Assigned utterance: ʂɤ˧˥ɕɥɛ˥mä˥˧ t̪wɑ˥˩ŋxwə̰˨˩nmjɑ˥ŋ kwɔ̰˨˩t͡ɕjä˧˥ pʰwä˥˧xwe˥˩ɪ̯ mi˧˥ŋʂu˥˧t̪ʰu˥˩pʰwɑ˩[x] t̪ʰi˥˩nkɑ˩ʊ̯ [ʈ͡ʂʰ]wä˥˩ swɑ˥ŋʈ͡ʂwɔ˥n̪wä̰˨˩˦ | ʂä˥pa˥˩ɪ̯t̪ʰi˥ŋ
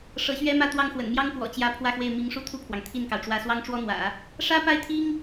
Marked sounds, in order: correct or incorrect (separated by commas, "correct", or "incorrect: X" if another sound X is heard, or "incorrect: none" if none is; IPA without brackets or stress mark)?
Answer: incorrect: ŋ, incorrect: ʈ͡ʂ